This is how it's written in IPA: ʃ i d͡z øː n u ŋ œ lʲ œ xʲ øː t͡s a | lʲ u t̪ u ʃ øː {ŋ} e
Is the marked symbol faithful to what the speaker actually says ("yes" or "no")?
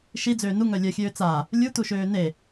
no